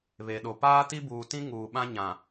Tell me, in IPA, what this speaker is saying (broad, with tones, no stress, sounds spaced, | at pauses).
β e˨ ɗ o˨ p aː˦ t i˦ b uː˨ t ĩ˦ ŋ uː˨ ɓ ã˦ ɲ ã˨